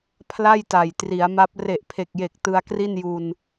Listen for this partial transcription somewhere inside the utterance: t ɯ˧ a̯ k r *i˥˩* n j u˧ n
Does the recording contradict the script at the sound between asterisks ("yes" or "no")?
no